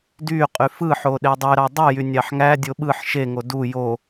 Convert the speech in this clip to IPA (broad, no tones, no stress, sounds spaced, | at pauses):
d y qʼ y f ɯ ħ o ɗ e dˤ ø ɾ ɑ dˤ y j y nʲ ɑ ħ ŋ æ dʲ o ɓ ɯ ħ ʃ e ŋ o d u j o